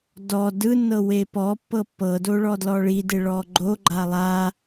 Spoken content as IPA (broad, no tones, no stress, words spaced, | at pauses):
dɔ dɯnːɤ wepɔ pːɤpːɤdoɭɔ dlɔɭide ɭɔɡ͡ǃo ɡ͡ǃalˠa